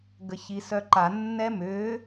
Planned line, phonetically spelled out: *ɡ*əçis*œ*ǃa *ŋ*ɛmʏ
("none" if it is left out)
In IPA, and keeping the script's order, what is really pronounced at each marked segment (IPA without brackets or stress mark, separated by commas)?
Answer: ɡ, œ, nː